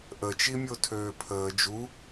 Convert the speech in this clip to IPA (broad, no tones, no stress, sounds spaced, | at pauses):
ʔ ə t͡ʃ i mʲ o tʰ øː pʰ əː d͡ʒ u